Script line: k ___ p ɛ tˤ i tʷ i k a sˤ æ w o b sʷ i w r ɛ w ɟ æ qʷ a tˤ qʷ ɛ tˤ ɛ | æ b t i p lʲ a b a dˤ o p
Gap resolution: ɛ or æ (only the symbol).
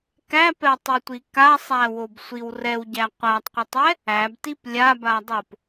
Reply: æ